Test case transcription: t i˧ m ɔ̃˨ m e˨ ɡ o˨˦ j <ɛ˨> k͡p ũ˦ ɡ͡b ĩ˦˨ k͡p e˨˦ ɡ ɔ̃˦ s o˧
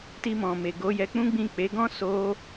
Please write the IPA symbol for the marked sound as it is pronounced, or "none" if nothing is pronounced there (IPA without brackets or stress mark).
ɛ˧